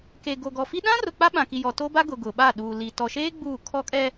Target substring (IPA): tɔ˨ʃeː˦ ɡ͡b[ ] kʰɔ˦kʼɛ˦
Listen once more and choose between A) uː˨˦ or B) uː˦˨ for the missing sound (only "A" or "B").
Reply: B